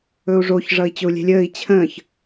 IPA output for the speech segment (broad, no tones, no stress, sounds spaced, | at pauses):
ɵ u̯ ʐ o ç ʐ ʌ i̯ t͡ɕ ɵ u̯ lʲ ɛ̤ lʲ əː i̯ t͡ɕʰ ə̃ː ç